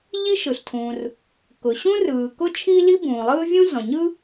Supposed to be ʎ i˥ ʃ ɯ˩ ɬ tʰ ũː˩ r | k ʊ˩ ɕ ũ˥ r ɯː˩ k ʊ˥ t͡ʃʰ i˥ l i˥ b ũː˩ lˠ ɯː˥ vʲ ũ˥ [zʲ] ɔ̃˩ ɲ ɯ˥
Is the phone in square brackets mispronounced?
yes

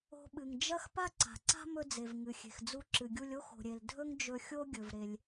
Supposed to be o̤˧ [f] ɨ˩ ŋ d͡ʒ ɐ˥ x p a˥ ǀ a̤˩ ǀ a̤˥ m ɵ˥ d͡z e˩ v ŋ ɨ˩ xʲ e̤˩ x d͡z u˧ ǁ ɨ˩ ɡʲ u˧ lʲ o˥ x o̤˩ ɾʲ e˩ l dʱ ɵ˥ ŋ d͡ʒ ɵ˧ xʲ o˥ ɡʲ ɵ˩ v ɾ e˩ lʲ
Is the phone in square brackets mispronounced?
yes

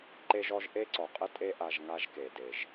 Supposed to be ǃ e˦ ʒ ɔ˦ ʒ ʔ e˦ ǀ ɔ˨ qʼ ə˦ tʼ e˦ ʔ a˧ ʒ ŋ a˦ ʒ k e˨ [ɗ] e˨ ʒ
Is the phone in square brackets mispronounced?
yes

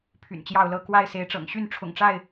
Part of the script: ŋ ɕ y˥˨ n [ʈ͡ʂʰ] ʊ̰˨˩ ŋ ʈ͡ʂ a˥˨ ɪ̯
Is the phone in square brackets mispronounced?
no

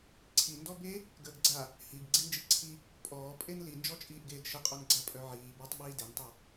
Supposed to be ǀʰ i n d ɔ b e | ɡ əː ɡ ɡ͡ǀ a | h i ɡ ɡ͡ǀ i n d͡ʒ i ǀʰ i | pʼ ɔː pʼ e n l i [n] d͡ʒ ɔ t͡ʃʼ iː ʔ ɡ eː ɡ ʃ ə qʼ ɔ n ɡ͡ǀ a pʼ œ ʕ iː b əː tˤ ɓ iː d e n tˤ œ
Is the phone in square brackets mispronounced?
no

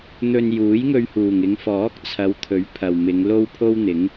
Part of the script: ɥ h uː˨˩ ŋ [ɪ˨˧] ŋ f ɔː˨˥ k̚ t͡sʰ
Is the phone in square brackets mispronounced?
no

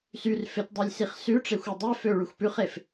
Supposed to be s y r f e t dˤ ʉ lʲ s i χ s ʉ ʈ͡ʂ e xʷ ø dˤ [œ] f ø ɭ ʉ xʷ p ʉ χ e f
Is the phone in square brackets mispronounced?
no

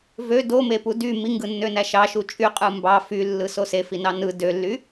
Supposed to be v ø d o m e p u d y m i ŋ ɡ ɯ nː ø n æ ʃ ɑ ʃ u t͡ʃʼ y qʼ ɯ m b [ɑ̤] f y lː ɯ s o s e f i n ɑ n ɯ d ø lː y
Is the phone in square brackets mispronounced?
yes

